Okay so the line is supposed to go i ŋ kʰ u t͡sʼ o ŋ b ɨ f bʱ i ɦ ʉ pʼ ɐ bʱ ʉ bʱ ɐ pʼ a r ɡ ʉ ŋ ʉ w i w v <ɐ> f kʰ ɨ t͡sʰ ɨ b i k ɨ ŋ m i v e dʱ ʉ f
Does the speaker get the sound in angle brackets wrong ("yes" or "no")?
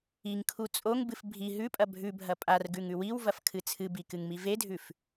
no